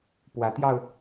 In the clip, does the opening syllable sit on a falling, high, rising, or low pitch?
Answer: rising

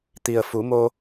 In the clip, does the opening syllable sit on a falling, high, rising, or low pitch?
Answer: low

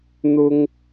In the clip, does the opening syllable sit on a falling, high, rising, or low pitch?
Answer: high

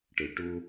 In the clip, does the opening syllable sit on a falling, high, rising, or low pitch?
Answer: low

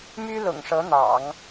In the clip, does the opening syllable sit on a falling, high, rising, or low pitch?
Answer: high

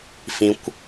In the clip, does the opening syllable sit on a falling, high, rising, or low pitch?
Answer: low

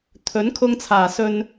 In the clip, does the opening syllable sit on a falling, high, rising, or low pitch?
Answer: rising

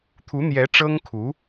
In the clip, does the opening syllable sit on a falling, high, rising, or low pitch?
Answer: rising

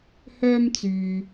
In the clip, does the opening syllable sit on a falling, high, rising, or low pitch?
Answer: high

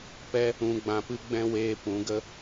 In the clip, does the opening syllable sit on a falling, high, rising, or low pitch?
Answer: high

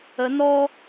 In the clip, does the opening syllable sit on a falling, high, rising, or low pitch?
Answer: rising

